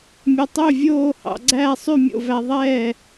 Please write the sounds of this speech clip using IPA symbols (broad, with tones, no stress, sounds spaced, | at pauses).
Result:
mʲ ɵ˧ tˤ ɵː˥˨ vʲ oː˥˨ h ɑ̰˧ ɡ͡ǀ æː˥˨ sˤ y˥˨ mʲ o̰˥˨ v æ˧ ðˤ ɛː˥˨